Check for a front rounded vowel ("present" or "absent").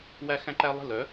present